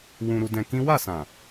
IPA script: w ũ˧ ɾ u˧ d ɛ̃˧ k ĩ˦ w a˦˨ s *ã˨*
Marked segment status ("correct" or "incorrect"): correct